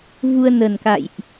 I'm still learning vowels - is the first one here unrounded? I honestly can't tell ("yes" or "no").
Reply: no